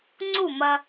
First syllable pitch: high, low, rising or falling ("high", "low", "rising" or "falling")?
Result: falling